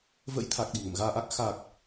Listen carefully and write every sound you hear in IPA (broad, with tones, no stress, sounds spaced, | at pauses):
v ə̰˧˥ j t̪ʰ a˨˩ k̚ ɗ i̤˨˩ ŋ ə̰˧˨ m ɣ aː˧ ʔ a˦˥ k̚ x a˨˩ k̚